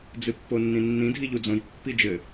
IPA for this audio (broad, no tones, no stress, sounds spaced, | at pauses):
d͡z ɨ pː o nː ĩ nː ĩ dʱ i ʎ u d͡z õ j pː i d͡ʒ ɘ